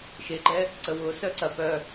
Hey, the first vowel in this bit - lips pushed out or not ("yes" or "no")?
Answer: no